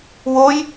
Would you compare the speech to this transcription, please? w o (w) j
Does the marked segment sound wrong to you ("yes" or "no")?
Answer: yes